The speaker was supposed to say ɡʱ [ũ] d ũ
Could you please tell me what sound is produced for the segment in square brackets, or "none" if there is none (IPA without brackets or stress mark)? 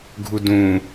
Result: u